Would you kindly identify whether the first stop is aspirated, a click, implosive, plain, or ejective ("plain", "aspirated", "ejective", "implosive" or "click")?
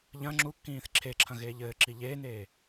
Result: click